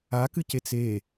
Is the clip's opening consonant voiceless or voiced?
voiceless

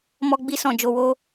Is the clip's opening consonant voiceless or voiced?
voiced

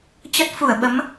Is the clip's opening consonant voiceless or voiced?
voiceless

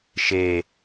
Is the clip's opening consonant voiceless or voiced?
voiceless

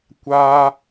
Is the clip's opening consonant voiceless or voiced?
voiceless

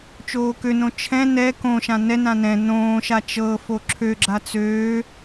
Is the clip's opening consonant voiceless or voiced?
voiceless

